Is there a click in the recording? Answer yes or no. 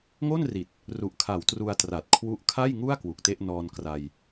no